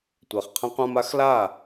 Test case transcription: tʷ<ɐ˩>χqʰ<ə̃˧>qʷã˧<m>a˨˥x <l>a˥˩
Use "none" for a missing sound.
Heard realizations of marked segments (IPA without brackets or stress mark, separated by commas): æ˩, ə̃˧, m, l